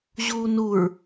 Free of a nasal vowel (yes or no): yes